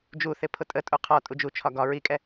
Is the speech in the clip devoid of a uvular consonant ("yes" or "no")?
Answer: no